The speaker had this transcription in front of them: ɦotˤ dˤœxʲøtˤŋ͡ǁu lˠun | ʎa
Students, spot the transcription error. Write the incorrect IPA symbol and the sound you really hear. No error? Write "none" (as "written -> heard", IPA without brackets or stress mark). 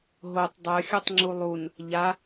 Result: ø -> œ